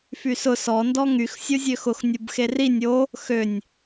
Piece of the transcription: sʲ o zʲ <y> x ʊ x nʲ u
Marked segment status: incorrect: ø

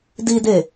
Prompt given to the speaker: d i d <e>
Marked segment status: correct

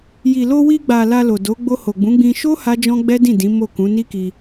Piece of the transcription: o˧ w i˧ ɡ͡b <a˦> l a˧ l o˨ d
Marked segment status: incorrect: a˨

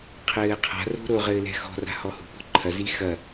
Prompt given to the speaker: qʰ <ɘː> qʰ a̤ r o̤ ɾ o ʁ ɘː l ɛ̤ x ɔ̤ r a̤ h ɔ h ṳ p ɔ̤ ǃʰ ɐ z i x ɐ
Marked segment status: correct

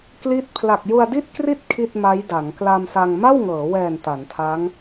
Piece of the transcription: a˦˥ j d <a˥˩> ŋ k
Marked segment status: incorrect: a˩˦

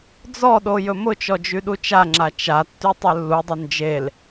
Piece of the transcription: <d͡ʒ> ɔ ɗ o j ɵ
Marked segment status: incorrect: d͡z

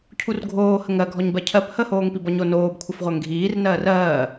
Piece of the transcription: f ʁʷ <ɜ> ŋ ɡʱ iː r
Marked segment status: correct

